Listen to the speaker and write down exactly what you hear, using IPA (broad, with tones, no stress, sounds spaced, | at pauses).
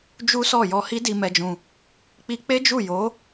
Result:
d͡ʒ u˦ s ɔ˦˨ j ɔ˧ h i˦ d i˧ m ɛ˧ d͡ʒ ũ˧ | k͡p i˧ k͡p e˦ d͡ʒ u˦˨ j o˨˦